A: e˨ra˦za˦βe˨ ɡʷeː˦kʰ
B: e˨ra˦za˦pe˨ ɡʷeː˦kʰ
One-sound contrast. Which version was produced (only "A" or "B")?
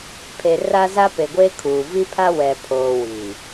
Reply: B